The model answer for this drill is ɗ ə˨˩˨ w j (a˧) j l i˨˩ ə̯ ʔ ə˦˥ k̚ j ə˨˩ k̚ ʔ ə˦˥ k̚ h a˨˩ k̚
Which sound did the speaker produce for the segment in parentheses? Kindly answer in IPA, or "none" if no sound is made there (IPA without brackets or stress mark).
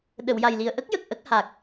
a˨˩